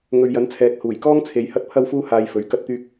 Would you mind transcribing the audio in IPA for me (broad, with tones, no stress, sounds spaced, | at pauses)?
ŋ ɵ˨ ɥ j ɐ˨˥ n t͡sʰ ɛː˨˥ k̚ h uː˨˩ j k ɔː˥ ŋ t͡sʰ e˨ j h ɐ˥ t̚ pʰ ɐ˥ w f uː˥ h aː˧ j f ɵ˨˥ ɥ k ɐ˧ t̚ t̪ yː˧ k̚